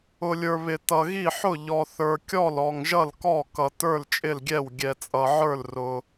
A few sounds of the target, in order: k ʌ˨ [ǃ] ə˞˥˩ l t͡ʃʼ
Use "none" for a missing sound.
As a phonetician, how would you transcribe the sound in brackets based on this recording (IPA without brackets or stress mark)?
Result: t